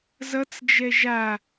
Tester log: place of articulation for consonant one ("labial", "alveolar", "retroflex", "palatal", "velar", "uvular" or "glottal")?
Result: alveolar